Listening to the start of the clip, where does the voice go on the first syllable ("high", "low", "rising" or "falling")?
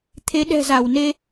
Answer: rising